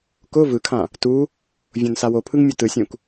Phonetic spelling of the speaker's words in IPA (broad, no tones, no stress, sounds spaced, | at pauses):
k ʊ v ɯ kʰ ã | t u | vʲ õ n s a w o pʰ ɯ ŋ mʲ ʊ t ɯ sʲ ũ k